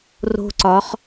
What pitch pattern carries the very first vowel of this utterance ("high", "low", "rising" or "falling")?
high